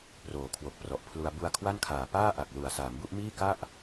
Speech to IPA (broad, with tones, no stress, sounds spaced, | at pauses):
p r oː˩˦ kʰ w o˨˩ k̚ p r ɔ˨˩ ʔ pʰ l u˧ a̯ b u˧ a̯ kʰ w a˥˩ n kʰ aː˨˩ p aː˥˩ ʔ a˨˩ k̚ l u˨˩ a̯ s aː˩˦ m b u˥˩ ʔ m iː˥˩ k a˥˩ ʔ